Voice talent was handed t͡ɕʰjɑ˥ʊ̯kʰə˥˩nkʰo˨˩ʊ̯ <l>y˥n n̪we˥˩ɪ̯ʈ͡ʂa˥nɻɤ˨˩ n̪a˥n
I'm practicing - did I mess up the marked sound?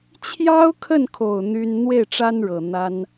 yes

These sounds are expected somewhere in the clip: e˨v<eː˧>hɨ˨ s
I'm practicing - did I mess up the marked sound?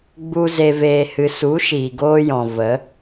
yes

